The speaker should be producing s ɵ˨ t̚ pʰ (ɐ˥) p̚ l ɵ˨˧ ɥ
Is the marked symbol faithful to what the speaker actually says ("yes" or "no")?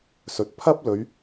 yes